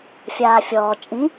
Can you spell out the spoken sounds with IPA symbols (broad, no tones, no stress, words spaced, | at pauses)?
fʲaːfʲɔː t͡ʃʼĩ